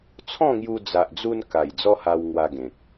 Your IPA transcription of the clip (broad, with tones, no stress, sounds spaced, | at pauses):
t͡sʰ ɔ̃˥˧ ŋ j u˧ d͡z a˨ ʔ d͡z u˧ n k a˨˩ j d͡z ɔ˦ h a˧ w ŋ w a˧ ɡ ẽ˨ k̚